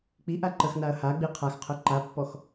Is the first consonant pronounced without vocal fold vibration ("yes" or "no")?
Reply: yes